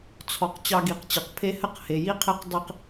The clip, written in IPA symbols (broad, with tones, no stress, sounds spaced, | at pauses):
t͡sʰ ɔ˨ q t͡ɕ ɑ˧ ɡ i˨ q t͡ɕ ɨ˨ q pʰ e˦ h ɘ˦ q h e˨ j i˦ qʰ e˦ q dˤ i˧ q